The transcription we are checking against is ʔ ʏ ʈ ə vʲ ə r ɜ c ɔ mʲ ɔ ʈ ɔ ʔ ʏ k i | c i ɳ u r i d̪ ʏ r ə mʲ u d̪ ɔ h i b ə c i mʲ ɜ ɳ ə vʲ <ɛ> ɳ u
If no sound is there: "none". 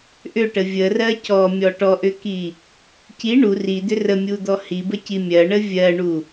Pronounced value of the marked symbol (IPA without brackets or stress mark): ɜ